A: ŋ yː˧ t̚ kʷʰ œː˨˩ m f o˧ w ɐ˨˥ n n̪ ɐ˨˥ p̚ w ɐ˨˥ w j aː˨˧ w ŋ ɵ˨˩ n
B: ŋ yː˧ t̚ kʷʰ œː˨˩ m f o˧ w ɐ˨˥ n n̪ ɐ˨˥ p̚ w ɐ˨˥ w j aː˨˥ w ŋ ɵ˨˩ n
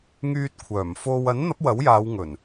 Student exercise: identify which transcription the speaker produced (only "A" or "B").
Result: A